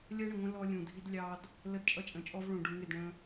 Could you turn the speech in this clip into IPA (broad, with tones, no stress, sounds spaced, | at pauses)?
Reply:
lʲ ɜ˦ ɳ ə˨ ŋʷ ə̃˦ l ɔ˦ lʲ ũ˨ dʱ i˦ d lʲ ɑ˦ d | l ə˦ d t͡ʃʼ ʌ˦ t͡ʃʼ ə̃˨ t͡ʃʼ ɔ˦ v ɭ ũ˨ ɖ u˨ ŋ ɪ˦˨ d ɳ ə̃˦